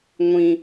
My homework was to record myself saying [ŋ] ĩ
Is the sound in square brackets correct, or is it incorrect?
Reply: incorrect